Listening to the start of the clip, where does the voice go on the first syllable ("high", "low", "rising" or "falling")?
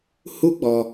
high